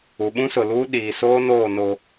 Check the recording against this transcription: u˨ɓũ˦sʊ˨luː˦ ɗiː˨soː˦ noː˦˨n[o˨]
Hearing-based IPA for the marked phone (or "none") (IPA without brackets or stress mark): o˨